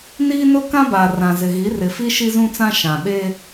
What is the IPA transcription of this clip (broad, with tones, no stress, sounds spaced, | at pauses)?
n iː˦ n ʊ˦ k ã˦ b aː˨ r ã˨ z ɪ˨ ɣ i˨˦ r ɪ˨ f i˦ ʃ i˦ z ũ˦ t͡s ã˦ ʃ ã˨ ɓ e˦